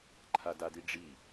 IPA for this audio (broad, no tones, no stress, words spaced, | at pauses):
ǃʰadadiɖ͡ʐi